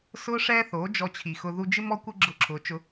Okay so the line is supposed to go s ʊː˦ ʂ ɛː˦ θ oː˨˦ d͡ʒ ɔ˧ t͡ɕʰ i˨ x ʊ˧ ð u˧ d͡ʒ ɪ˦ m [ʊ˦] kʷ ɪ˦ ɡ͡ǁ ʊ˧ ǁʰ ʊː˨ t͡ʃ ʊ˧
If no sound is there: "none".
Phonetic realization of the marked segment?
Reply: ɔ˦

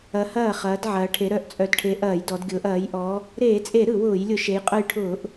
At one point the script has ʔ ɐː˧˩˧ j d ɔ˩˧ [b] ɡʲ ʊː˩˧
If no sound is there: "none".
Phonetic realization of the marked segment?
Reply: d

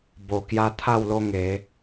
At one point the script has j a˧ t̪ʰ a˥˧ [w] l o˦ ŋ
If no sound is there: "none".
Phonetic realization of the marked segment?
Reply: w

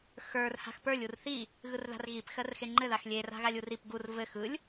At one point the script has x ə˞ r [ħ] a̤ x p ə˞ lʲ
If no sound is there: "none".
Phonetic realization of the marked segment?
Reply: h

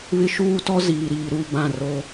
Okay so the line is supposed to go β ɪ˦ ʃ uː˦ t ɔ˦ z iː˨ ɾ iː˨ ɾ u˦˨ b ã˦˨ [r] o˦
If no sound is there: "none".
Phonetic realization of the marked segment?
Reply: r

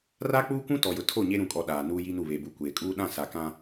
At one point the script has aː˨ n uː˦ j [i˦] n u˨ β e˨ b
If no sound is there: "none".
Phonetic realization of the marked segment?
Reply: i˦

